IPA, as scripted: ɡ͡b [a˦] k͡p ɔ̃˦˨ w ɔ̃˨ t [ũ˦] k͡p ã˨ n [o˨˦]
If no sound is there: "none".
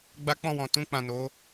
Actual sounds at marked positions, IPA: a˦, ũ˧, o˨˦

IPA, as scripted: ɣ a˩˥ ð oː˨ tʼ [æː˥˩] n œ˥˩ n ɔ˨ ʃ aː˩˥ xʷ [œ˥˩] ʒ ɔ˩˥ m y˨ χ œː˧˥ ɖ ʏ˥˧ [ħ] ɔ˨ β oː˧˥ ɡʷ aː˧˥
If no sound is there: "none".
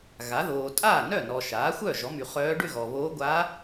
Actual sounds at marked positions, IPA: aː˥˩, œ˥˩, ɣ

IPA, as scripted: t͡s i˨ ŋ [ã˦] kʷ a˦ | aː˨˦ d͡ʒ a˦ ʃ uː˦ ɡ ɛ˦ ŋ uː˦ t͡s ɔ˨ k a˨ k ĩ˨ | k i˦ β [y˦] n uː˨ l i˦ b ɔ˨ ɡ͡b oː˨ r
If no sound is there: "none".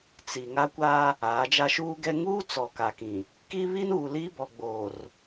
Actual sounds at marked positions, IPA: a˦, i˦

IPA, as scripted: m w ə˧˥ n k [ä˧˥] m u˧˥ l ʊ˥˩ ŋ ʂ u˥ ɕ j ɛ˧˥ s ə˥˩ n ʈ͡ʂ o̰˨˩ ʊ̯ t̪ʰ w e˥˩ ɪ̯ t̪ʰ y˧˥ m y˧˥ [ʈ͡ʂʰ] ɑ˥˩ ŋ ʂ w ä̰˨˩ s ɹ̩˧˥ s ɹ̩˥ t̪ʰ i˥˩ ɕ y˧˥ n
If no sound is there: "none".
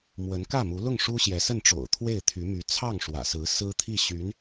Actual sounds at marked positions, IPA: ä˥˩, t͡sʰ

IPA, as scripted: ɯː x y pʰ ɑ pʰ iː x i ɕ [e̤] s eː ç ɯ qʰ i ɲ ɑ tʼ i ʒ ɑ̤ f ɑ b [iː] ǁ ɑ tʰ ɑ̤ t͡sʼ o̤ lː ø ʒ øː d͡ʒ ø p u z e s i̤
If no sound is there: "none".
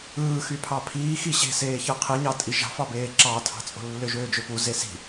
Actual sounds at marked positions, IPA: e̤, eː

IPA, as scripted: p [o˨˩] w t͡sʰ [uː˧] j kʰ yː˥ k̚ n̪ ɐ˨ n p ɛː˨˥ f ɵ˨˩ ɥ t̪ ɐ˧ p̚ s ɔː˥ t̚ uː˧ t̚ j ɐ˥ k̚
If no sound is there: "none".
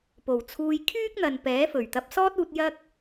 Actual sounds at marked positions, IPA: o˨˩, uː˧

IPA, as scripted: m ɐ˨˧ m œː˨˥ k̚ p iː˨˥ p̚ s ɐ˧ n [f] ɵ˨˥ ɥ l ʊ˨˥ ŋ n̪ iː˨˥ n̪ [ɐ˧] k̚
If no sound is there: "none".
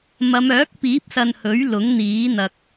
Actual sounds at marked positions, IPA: h, ɐ˧

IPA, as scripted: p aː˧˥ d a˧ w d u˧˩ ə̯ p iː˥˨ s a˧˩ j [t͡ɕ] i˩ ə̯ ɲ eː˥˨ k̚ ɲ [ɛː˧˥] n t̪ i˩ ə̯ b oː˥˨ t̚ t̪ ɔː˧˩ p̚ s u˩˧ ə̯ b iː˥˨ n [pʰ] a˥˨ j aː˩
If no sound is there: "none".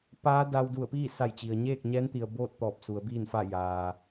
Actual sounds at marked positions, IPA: t͡ɕ, ɛː˧˥, f

